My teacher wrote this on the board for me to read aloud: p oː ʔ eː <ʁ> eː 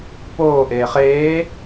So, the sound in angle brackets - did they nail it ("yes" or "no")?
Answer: no